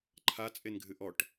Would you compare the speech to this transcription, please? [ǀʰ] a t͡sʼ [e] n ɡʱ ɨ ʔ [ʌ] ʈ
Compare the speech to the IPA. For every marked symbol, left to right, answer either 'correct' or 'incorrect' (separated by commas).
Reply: incorrect, correct, incorrect